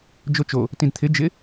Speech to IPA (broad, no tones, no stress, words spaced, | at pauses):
d͡ʒot͡ʃo | tĩdt̪ʰɪ d͡ʒɪ